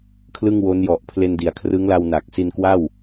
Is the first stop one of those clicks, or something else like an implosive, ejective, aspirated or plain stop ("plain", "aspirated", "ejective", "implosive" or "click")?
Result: aspirated